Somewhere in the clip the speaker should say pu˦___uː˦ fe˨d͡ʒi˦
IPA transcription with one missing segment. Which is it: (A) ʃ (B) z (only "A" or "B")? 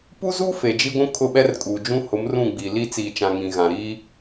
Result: B